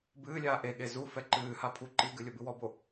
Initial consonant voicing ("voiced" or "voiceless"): voiced